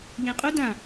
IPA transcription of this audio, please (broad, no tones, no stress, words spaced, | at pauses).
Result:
ʎẽqʼu dã